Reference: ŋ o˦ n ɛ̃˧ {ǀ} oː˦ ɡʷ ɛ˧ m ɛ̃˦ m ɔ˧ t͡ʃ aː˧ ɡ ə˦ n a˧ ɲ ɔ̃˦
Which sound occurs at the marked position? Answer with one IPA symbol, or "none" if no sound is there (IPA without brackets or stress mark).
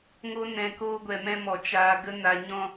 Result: k